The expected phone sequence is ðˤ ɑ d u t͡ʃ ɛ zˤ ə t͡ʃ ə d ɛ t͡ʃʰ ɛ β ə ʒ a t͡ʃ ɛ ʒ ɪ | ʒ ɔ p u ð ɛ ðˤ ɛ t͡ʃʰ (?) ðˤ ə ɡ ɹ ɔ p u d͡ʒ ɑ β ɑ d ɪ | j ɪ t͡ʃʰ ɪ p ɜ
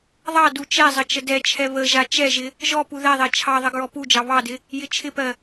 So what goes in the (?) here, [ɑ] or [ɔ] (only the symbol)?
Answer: ɑ